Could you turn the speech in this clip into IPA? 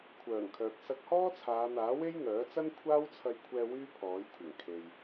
kʷʰœː˨˩ŋkʰœː˨k̚ sɐ˧k̚hɔː˥t͡sʰaː˨˧n̪aː˨˥ we˥jŋœː˨˥ t͡sɐ˥nkʷʰaː˥wt͡sʰɐ˧j kʷʰɛː˧ wyː˥pʰɔː˨˥jkʷʰɪ˨˩ŋ kʰe˨j

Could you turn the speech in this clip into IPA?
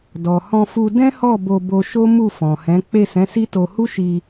dɔ˨ hɔ̃˧fu˧ dɛ̃˦hɔ˦˨ bo˧ bo˧ʃo˦mu˦˨ fɔ̃˨hɛ̃˨˦ k͡pe˦˨sɛ̃˨˦si˦ to˧hu˦ʃi˧

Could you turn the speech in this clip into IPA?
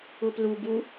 ʊplubu

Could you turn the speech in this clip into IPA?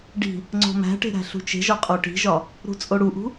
ɖi̤ | ŋ͡ǀo̤mæ̤ʈe̤ ɾæ̤ɬṳt͡ʃe̤ʒɒ qʼoʈi̤ʒɒ | ɾṳt͡sʼoɽuʔṳ

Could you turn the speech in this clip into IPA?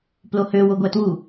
plohø woɡʷætwu

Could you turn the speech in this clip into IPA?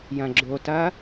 jɐ̃ ɡ͡ǁo tɐ

